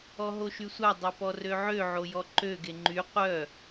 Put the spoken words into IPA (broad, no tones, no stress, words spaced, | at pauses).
ɔɦoʃysʷa dˤœpɔrøʕø ʕojɔǃø ɡeŋ͡ǃy qʷœ